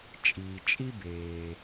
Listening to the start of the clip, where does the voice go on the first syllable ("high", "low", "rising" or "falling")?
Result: low